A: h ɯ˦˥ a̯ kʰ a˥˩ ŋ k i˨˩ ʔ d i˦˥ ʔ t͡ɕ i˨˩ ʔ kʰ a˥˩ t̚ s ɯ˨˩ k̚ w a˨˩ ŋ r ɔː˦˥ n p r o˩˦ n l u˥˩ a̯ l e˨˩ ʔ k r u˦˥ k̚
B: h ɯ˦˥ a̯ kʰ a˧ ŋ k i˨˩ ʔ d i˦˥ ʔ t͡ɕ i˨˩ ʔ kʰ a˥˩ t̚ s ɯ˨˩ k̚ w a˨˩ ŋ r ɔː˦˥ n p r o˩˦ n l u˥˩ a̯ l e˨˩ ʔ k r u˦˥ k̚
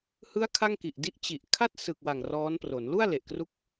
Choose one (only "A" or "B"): A